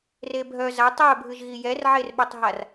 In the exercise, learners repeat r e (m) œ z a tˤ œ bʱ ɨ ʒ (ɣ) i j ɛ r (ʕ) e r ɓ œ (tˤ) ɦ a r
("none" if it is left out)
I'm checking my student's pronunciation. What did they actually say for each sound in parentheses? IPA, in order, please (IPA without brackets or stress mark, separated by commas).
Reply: bʱ, ɣ, ʕ, tˤ